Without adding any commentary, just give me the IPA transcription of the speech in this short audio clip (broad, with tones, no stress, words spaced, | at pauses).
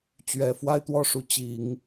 t͡ɕɥɛ˨˩ fwa˥˧ɪ̯t̪wɔ˥˩ʂu˧˥ t͡ɕi˨˩˦ŋ